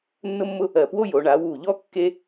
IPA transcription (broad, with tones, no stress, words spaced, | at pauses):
nːʊ˥mːʊ˥ | ɜ˧˩pwo˥jo˩˧ ɳa˩˧wu˧˩ʎɔ˥ kːe˥